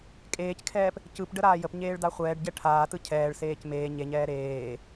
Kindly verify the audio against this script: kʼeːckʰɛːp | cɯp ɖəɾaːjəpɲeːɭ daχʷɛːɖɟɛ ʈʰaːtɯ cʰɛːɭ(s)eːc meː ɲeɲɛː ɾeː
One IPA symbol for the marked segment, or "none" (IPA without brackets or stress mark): s